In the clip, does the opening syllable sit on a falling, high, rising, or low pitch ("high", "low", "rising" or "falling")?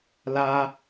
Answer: high